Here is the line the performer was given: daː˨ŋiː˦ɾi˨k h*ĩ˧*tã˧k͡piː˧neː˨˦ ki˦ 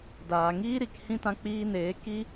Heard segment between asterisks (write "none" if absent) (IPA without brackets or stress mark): ĩ˦˨